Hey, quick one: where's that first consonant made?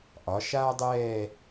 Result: throat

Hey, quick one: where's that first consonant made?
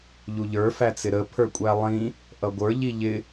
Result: palate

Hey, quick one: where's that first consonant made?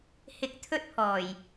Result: throat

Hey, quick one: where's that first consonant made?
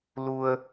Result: tongue tip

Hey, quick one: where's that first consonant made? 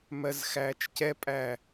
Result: lips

